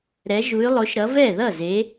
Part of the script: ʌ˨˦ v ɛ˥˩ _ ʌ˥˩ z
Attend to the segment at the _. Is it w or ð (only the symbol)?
ð